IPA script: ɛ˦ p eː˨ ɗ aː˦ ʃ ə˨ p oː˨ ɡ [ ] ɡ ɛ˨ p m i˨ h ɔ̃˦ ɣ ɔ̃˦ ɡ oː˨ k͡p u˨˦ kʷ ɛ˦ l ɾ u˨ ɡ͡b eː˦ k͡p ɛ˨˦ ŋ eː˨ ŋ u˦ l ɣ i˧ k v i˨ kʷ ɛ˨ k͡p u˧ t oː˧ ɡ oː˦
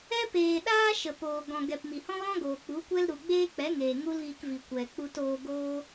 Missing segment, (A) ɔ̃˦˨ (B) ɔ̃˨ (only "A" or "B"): B